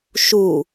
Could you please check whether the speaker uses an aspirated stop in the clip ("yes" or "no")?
no